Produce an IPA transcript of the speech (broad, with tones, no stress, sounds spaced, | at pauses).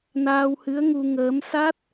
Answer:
n aː˧ w h ɨ˧˥ ə̯ ŋ u˧ ŋ əː˧˥ m s a˦˥ t̚